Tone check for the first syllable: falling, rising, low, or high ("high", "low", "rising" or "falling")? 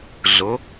rising